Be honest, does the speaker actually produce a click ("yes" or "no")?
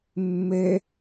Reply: no